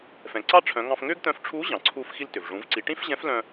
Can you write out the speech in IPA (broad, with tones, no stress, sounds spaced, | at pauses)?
f ɛ̃˩ ǀ ɑ˥ ʈ͡ʂʰ œ̃˩˧ ŋ ɑ̃˧ f ŋ ʏː˥ ɡ t̪ œ̃˧˥ f ʈ͡ʂʰ uː˧˥ ʑ ɑ̃˩ ǀʰ uː˧ f x i˧ l t ʏ˩ v ʐ ũ˩˧ v ǀ i˩˧ ʈ ĩ˥ f ʑ ɛ̃˧˥ f l œ̃˧